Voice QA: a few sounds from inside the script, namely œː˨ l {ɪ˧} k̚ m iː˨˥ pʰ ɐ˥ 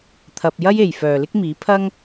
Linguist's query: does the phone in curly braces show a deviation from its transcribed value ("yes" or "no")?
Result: yes